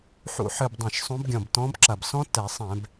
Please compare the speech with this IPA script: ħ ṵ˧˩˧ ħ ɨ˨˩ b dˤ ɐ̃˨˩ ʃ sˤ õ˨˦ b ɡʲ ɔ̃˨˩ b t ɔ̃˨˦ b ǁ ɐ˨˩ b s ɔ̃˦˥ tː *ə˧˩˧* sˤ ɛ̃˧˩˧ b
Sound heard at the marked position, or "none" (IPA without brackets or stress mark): ɛ˧˩˧